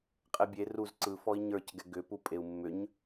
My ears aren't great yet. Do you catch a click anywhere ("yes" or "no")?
yes